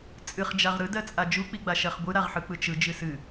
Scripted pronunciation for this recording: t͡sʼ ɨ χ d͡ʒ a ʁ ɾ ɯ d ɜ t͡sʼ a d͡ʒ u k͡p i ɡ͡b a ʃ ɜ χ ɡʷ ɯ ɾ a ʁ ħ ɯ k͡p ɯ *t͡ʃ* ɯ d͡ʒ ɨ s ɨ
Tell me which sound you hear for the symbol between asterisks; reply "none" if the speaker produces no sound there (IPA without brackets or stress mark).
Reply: t͡ʃ